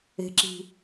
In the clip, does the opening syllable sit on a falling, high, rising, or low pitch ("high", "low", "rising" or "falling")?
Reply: low